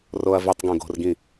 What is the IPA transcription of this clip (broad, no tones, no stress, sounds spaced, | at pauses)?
r o ɐ̯ v i tˤ ɡ õ ɡ o̤ r ɡ ĩ